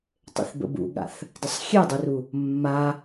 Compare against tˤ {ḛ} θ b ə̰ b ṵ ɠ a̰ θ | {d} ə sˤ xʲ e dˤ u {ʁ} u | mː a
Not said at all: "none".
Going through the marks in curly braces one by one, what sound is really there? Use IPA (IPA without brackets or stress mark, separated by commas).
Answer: ḛ, d, r